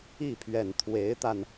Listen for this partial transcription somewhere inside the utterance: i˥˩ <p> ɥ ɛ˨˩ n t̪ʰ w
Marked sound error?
yes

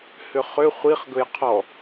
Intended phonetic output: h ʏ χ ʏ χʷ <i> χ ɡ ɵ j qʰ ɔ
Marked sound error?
no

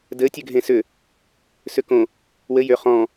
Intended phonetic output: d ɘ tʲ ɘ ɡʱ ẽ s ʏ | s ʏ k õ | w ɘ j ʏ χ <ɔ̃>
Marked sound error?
no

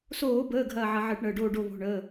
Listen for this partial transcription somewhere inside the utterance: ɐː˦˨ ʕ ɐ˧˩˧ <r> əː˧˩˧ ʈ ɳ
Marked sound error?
yes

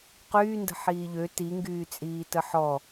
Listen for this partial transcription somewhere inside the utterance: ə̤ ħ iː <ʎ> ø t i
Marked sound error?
no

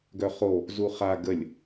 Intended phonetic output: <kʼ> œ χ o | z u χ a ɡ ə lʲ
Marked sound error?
yes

